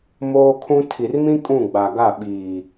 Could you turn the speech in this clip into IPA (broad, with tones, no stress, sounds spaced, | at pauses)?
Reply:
m oː˦ kʰ ũ˦ tʰ i˨ r m ĩ˦ kʼ ũ˦˨ ɡ͡b a˨ ɡ a˦˨ ɓ iː˨